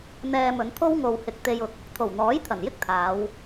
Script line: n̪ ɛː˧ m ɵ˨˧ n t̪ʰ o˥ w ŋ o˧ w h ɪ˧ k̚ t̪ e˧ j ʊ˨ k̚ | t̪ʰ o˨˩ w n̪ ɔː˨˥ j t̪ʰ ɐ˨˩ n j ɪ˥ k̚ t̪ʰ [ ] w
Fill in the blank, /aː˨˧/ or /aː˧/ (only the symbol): aː˨˧